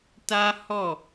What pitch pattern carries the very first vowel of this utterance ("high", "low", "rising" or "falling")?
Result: high